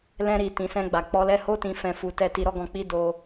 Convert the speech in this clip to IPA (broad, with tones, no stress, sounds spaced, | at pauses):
l ɛ̃˧ ɾ i˨ t ĩ˨ s ɛ̃˧ ɡ͡b a˨ k͡p ɔ˧ l ɛ˦ h o˧ t ĩ˨ f ɛ̃˧ f u˧ t ɛ˦ t i˧ ɾ ɔ˦ ɡ ɔ̃˧ k͡p i˦ d o˧